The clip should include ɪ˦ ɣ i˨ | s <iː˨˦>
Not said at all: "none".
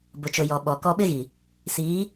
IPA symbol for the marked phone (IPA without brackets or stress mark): iː˨˦